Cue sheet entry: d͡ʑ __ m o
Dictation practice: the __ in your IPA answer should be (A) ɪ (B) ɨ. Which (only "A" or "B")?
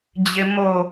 A